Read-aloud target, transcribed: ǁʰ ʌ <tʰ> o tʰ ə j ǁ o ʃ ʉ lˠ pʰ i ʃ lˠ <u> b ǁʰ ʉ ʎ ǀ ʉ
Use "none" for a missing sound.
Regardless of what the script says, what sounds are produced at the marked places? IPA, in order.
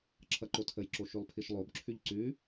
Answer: ǃ, o

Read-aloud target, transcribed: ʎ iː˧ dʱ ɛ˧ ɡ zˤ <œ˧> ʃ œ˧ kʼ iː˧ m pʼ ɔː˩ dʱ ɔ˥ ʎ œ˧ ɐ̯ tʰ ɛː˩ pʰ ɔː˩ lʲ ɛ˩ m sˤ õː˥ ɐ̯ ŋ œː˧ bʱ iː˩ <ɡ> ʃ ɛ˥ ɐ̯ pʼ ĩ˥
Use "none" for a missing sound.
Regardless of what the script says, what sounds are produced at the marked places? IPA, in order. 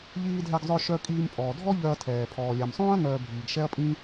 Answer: œ˧, ɡ

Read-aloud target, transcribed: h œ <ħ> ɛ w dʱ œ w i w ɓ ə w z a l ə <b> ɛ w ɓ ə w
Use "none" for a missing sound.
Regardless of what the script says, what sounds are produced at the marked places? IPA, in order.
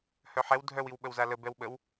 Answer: ħ, b

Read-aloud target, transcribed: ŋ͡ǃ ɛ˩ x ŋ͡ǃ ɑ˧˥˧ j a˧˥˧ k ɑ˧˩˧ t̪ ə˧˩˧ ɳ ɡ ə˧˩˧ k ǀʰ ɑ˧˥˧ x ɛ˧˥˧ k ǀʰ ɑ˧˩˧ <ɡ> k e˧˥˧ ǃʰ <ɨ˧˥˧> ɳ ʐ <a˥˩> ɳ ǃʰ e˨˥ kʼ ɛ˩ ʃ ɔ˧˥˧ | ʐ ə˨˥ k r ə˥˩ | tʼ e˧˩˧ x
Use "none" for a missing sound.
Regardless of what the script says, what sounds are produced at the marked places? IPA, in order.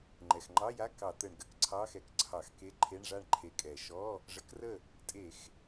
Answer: x, e˧˥˧, a˥˩

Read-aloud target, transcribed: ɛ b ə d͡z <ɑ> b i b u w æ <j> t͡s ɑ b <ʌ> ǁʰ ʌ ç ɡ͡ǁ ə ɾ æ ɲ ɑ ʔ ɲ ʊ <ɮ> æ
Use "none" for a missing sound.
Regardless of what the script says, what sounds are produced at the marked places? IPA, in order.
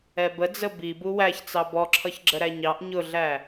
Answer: ə, ç, ɔ, ɮ

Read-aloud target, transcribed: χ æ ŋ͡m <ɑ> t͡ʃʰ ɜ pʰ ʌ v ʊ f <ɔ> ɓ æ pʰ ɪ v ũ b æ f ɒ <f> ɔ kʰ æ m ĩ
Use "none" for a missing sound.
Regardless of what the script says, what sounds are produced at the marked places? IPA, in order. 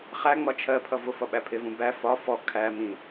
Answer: ɒ, ʌ, f

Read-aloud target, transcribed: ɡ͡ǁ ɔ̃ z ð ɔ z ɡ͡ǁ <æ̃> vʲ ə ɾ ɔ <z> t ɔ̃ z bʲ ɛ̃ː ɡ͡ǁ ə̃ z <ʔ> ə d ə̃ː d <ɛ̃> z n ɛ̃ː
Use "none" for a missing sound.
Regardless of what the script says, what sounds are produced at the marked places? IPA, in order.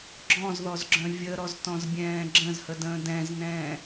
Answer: œ̃, z, h, ɛ̃

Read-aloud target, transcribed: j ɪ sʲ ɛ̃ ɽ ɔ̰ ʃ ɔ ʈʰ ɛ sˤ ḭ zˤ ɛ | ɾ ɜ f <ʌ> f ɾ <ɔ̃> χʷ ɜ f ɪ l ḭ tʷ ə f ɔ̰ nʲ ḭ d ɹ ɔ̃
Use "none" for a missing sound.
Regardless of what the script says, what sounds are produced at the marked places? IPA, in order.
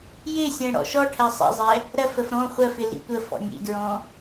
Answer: ə, ɔ̃

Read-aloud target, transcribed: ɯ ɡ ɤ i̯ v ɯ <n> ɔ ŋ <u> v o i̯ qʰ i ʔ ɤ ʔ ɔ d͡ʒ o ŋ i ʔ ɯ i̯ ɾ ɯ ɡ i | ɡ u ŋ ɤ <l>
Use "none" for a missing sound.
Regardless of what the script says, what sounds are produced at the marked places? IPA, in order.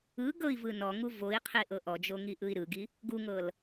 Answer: n, u, l

